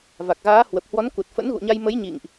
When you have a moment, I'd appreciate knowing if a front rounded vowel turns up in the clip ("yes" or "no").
no